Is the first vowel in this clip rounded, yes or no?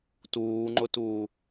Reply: yes